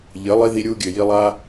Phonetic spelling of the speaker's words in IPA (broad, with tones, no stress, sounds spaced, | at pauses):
ʎ ɘ˨˦ lˠ i˧ ð i˧ ɾʲ u˧ ɡʲ ɘ˨ j i˧ lˠ a˦